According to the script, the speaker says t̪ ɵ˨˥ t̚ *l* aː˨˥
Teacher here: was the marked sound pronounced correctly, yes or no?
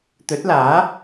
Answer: yes